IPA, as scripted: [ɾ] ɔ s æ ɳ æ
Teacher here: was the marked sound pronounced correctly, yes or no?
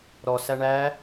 yes